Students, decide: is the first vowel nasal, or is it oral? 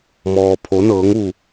oral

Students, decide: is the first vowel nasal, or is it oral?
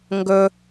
oral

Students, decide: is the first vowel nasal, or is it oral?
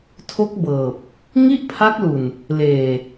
oral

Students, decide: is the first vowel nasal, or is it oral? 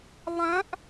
nasal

